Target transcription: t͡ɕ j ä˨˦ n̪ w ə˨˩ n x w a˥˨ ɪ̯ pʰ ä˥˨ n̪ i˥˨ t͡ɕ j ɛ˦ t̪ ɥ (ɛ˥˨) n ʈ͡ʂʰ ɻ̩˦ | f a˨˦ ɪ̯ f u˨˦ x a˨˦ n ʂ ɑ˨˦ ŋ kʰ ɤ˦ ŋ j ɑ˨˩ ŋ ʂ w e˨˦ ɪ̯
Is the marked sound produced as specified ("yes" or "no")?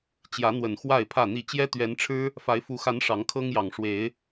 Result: no